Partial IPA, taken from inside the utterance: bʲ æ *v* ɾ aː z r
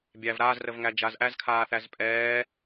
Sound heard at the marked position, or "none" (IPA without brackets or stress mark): v